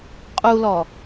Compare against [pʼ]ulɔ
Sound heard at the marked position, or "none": qʼ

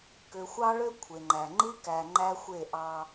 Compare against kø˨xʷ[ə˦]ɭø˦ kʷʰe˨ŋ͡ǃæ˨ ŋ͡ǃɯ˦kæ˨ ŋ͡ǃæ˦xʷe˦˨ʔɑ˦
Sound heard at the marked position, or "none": ɑ˦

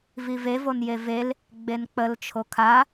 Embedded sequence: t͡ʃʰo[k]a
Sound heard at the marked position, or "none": kʰ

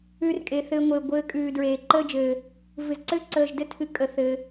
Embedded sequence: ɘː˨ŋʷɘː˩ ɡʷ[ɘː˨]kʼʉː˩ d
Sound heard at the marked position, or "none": ɘː˨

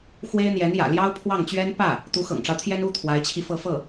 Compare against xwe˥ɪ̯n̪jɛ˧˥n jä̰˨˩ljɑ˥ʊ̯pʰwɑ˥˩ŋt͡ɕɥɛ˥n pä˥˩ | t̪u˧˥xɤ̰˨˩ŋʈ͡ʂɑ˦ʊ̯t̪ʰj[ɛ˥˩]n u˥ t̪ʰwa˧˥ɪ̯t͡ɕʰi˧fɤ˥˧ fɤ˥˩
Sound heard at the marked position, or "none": ɛ˥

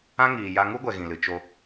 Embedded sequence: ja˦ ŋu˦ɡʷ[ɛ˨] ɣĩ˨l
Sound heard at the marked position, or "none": ɛ˨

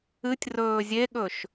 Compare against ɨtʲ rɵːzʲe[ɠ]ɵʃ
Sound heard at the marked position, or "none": ɠ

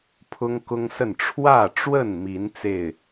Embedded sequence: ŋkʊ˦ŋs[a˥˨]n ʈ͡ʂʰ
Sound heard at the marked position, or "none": ə˥˨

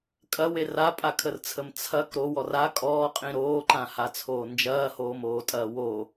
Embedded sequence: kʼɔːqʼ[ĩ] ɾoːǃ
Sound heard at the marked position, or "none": ĩ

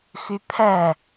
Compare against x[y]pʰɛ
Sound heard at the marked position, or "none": y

